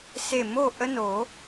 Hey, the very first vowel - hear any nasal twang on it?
no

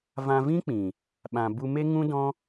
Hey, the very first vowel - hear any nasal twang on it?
yes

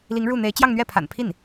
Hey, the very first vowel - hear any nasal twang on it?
no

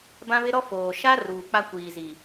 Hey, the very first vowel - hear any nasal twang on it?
yes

